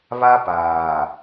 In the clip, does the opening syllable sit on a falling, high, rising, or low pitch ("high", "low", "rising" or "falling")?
high